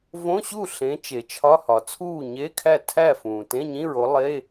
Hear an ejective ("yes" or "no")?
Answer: no